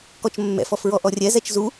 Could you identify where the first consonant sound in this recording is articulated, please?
velar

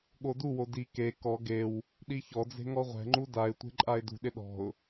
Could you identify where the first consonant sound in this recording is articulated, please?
velar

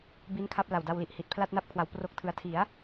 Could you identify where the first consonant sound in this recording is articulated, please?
labial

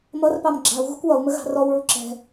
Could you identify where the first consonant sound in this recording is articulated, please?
labial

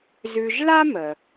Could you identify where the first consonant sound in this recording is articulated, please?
alveolar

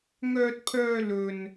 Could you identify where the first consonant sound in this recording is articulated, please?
velar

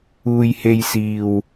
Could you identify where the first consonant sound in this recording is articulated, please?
palatal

